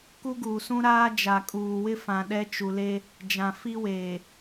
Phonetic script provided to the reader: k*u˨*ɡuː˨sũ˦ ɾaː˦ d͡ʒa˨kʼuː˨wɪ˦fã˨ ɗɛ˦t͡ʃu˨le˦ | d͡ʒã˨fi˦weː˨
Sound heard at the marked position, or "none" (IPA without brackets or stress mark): u˦